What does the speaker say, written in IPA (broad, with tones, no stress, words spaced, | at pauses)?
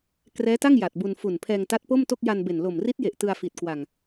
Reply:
krɛː˦˥ta˥˩ŋ ja˨˩t̚bu˧n fu˨˩n pʰɛː˧ŋta˦˥t̚po˥˩mto˥˩k̚ ja˧nbe˨˩n lo˨˩mri˦˥t̚je˨˩ʔ tɯ˧a̯fi˨˩t̚kwa˨˩ŋ